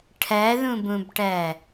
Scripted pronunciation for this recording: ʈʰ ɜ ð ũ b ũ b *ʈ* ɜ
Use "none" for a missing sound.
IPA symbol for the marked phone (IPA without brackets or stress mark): ʈ